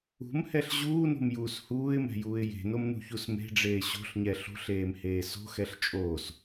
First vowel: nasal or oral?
oral